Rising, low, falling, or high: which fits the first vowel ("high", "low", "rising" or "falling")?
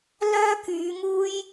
high